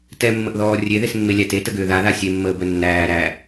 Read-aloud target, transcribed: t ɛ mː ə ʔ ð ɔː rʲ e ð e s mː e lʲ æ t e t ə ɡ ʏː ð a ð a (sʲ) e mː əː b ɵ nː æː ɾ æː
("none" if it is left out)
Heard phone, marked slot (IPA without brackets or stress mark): sʲ